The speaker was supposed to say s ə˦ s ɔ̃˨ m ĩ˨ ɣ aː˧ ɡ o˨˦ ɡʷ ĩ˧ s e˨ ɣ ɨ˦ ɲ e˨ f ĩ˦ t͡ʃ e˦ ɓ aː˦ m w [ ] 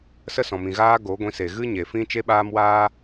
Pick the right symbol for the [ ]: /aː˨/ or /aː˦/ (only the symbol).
aː˦